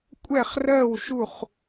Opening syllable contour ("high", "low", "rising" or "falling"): falling